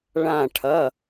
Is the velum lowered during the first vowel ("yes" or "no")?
yes